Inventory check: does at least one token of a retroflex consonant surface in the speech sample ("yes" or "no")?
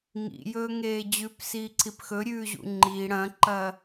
yes